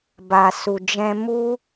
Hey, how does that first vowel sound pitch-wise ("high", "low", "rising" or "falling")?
low